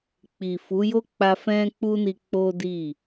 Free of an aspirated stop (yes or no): yes